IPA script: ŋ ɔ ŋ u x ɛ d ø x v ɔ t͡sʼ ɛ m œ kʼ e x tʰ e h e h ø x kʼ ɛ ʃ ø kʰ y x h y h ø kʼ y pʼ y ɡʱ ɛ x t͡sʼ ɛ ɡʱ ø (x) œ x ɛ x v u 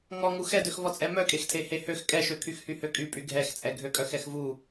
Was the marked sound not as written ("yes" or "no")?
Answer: yes